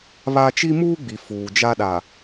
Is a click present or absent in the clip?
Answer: absent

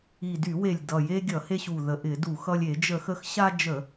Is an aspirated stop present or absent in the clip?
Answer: absent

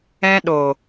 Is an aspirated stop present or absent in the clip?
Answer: absent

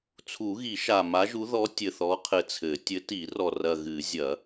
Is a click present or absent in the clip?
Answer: absent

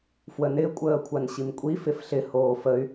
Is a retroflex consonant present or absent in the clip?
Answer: absent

